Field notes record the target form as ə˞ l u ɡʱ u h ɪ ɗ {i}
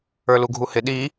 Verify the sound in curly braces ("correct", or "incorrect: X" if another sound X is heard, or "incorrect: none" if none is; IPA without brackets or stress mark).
correct